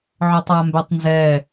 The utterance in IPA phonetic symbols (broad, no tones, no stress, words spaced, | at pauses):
ʕɔtˤambɛtˤnzɛ